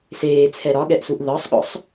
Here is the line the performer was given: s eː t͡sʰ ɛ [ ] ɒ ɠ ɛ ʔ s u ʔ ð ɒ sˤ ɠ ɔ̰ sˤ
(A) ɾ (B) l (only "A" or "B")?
A